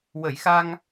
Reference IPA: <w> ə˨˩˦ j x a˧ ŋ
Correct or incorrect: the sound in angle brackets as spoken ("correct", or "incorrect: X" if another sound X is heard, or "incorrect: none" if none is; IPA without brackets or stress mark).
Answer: correct